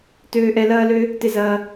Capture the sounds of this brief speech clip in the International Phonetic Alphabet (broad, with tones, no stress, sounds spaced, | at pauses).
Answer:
t øː˨ ʔ ɛ˨ l ɐː˦ l ø˦ | t ɪ˨ z ɐː˨